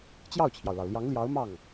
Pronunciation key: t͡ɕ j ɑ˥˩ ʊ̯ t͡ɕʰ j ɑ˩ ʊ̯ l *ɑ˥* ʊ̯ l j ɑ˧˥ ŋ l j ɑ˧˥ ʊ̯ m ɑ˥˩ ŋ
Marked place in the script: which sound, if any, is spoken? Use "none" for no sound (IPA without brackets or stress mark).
ɑ˩